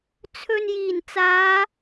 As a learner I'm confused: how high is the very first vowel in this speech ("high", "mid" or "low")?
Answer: mid